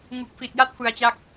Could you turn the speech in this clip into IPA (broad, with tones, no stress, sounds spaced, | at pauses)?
ŋ u˨˩ k̚ f i˨˩ t̚ j a˦˥ t̚ f ɯ˧ a̯ t͡ɕ a˥˩ k̚